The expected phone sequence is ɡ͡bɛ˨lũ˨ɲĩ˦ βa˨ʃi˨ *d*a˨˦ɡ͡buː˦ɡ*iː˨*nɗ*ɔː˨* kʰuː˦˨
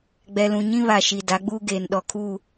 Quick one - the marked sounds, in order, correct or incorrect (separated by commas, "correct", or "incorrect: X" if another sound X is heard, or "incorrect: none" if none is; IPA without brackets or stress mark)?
correct, incorrect: eː˨, incorrect: ɔ˨